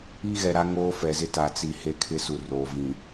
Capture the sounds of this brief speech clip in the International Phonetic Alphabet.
i˦ ɣ ɛ˨ ɾ a˦ ŋ oː˦ f ɛ˨ z ɪ˦ t a˨ t͡s i˨ h e˦˨ kʰ ɪ˦ s u˨ r oː˨ v ĩ˨

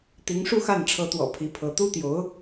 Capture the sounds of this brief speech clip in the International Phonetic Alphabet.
t̪ i˧˥ ŋ ʂ u˥˧ x a˥˩ n ʈ͡ʂʰ ɤ˧˥ t̪ w ɔ̰˨˩ pʰ i˧˥ pʰ ɤ˧˥ t̪ u˥ t̪ j o˧˥ ʊ̯

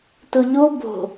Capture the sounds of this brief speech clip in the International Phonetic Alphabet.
t ʊ ʎ o b o̤

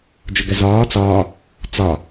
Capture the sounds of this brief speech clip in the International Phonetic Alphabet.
d͡ʒ ʊ ɡ ɛ z ɒː t͡s ɒː | t͡s ɒ

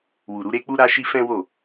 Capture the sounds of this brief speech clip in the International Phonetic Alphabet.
w u˨ ɾ u˨˦ ɾ e˦ k͡p u˦ ɾ a˦ ʃ i˦ f ɛ̃˦ w o˦˨

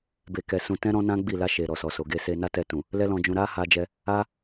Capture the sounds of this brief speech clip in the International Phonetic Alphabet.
b e˧ k ɛ˧ s ũ˧ t ɛ̃˦ ɾ ɔ̃˦ n ã˦ ɡ͡b i˦˨ l a˧ ʃ e˨ ɾ ɔ˨ s ɔ˨ s o˨ ɡ e˧ s e˧ n a˦ t ɛ˧ t ũ˨ | l ɛ˦ l ɔ̃˧ d͡ʒ ũ˧ ɾ a˦ h a˧ d͡ʒ ɛ˧ | a˦

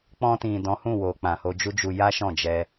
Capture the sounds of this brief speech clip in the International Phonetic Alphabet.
k͡p ɔ̃˧ t ĩ˨ d ɔ̃˨˦ h ũ˦˨ w o˨ k͡p ã˨ h o˧ d͡ʒ u˦ d͡ʒ u˧ j a˦ ʃ ɔ̃˦˨ d͡ʒ ɛ˧

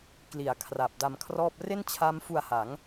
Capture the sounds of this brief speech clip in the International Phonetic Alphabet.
k l i˩˦ a̯ kʰ r a˨˩ p̚ d a˧ m kʰ r ɔː˥˩ p̚ r e˥˩ n t͡ɕʰ a˦˥ m f u˧ a̯ h a˩˦ ŋ

